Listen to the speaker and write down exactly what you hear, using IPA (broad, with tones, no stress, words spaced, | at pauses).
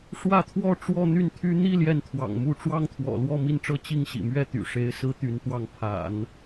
ʂwä˥˧t̪ʰwɔ˥˧ ʈ͡ʂwɔ˥˧n̪y˥˩nt̪ʰy˥ n̪i˥˧ ljɛ˥˩nt̪ʰwɑ̰˨˩ŋmu˥˩ ʈ͡ʂwɑ˥ŋt̪ʰwɔ̰˨˩lwɔ˥˧ mi˥˧nʈ͡ʂɤ˥˧ t͡ɕi˥˩ŋɕḭ˨˩mɥɛ˥˩ t̪y̰˨˩ʂe˧˥ɪ̯ sɹ̩˥t̪y˧˥nt̪wɑ˥˩ŋ pʰa̰˨˩˦n